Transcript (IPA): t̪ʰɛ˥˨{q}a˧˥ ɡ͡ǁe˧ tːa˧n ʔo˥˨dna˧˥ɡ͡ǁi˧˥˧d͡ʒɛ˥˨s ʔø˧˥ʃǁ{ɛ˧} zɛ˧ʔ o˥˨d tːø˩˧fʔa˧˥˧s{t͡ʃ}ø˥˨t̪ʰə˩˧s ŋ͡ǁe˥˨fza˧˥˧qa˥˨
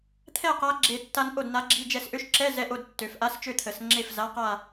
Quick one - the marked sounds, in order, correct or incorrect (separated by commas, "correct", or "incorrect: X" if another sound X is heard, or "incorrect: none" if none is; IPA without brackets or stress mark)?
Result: correct, incorrect: ɛ˧˥˧, correct